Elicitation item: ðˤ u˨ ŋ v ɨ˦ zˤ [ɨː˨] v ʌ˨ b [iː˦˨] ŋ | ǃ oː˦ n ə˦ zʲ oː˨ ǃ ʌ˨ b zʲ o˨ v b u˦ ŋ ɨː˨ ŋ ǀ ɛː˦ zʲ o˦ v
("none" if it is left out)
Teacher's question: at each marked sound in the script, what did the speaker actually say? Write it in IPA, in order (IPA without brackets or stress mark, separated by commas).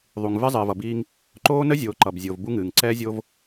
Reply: ɨː˨, iː˦